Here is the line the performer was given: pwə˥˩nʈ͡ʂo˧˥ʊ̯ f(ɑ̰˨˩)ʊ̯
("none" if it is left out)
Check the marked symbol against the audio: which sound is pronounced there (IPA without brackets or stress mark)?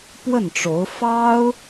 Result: ɑ˥